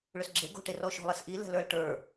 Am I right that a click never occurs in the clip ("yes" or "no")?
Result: no